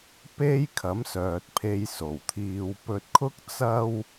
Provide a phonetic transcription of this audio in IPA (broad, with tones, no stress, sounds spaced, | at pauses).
p e˥ j kʰ ɐ˨˥ m s œː˨ t̚ pʰ e˧ j s o˨˩ w t̪ʰ iː˧ w p ɵ˧ t̚ kʰ ʊ˥ k̚ t͡s ɐ˥ w